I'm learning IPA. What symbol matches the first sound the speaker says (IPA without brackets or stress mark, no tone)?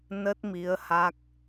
n